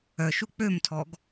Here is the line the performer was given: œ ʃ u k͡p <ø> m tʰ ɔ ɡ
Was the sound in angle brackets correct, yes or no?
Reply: yes